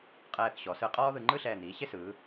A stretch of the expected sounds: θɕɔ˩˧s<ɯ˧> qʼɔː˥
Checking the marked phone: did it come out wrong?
no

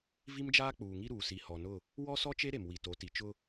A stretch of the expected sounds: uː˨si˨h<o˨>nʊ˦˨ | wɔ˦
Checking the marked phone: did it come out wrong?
yes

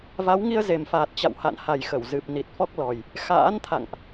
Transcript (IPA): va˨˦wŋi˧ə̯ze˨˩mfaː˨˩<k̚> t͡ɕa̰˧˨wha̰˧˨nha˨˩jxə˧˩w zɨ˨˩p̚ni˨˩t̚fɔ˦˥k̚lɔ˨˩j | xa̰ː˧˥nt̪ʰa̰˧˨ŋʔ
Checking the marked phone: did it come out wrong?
yes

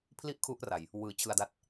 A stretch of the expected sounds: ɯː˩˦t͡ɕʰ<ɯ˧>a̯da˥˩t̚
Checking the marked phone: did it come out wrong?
no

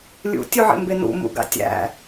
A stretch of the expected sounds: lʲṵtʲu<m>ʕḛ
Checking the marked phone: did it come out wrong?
yes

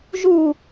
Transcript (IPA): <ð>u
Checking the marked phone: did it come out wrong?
yes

